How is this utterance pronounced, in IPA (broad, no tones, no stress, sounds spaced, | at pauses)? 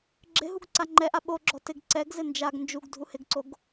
ɡ͡ǁ ɪ ɦ u ɡ ǀ a ŋ͡ǃ ɛ ʔ a ɓ o ɡ͡ǁ ɔ t ɪ ɡ ǀ ɛ ɡ z ɪ n d͡ʒ a ɡ n d͡ʒ u ɡ dʱ u h ɪ ɡ ǀ o ɡ